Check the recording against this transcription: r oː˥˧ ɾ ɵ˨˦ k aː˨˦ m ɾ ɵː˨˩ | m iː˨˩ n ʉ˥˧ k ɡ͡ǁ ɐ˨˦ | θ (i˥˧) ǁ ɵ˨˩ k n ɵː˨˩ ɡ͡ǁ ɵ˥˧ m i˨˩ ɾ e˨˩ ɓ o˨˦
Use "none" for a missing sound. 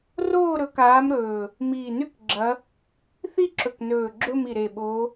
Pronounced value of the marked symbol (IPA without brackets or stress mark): i˥˧